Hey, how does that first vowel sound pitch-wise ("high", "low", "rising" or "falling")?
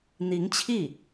rising